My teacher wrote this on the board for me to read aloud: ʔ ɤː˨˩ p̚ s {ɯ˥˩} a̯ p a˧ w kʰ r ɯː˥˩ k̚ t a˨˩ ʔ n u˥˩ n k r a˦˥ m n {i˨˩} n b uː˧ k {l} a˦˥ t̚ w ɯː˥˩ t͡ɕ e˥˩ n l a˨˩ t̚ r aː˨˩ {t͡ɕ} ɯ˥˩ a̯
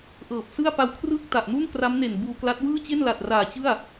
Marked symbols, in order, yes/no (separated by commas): yes, no, yes, yes